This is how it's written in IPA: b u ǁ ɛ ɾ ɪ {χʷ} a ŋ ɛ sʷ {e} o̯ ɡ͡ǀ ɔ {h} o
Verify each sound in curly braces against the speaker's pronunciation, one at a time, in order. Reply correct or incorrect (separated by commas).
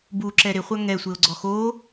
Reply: correct, correct, incorrect